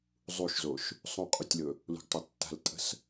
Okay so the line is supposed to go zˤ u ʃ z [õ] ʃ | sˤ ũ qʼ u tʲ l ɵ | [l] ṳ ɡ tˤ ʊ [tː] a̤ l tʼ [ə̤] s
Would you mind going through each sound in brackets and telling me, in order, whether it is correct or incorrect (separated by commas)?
incorrect, correct, correct, correct